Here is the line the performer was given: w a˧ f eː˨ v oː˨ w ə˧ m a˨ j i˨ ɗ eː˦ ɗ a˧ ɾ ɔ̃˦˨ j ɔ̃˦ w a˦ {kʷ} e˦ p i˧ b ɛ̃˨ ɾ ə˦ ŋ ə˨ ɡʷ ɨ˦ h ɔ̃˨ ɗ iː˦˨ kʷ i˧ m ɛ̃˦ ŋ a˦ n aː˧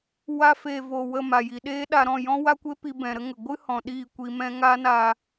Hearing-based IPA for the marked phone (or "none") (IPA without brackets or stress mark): kʷ